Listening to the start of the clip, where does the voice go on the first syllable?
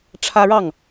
high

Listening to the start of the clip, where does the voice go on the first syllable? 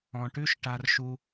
low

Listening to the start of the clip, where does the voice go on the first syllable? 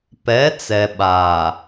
rising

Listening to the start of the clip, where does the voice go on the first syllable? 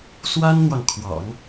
high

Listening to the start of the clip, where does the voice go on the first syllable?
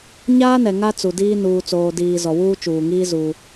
high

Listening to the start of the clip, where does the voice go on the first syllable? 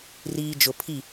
low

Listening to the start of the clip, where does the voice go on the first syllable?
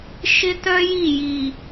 high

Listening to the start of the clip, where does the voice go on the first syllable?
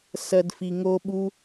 low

